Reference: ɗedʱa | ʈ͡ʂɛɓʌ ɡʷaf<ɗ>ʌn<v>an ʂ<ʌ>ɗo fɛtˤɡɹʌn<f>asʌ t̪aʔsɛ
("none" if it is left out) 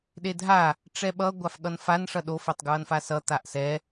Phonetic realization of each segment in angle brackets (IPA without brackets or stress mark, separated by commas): ɠ, f, ʌ, f